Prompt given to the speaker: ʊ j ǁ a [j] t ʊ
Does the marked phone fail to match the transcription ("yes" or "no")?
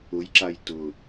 no